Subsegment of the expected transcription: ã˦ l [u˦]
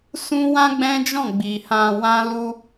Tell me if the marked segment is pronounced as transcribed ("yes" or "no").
yes